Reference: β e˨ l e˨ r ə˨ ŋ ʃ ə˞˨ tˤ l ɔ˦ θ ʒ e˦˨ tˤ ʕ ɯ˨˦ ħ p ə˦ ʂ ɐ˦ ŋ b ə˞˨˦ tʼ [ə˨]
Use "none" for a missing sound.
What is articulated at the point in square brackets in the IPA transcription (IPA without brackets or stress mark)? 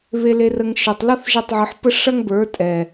ɛ˨